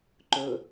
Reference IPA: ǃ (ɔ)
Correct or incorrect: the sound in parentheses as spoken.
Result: incorrect: ɵ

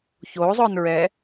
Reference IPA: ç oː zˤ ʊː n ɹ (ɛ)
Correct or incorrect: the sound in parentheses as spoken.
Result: correct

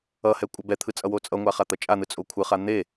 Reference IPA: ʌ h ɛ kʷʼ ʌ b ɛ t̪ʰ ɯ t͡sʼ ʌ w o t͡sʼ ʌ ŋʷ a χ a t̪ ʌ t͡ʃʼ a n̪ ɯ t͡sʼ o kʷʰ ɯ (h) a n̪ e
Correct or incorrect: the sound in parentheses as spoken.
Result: incorrect: χ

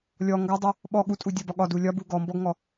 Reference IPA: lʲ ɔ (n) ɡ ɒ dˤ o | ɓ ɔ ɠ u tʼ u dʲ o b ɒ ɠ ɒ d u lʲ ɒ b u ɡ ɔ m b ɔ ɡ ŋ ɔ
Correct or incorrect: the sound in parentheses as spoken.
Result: incorrect: ŋ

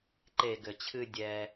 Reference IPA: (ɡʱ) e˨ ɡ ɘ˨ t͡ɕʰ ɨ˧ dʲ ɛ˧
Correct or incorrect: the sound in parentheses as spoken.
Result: incorrect: ǃ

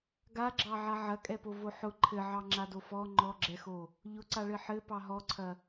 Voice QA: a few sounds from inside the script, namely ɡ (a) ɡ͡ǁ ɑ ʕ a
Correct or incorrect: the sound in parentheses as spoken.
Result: correct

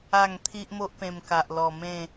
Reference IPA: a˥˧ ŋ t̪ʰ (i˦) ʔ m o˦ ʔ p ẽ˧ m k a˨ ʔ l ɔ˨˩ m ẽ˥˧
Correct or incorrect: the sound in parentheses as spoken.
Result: correct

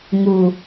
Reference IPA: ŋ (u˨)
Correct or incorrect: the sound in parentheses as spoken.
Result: correct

